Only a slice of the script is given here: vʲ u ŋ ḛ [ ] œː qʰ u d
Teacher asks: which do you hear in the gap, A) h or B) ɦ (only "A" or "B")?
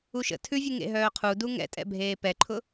B